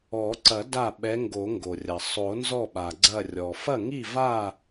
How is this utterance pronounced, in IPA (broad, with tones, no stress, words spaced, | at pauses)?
ɔ˨˩˦ǀɐ˨˩˦ da˥˩ ɓɛ˧˥ŋɡo˨˩˦ ŋɡo˩rʲɐ˩ sˤo˨˩˦ nzɔ˥˩ɓa˩ ɡ͡ǀɐ˧˩rʲɔ˩ fɐ˥˩ŋi˥˩ va˥˩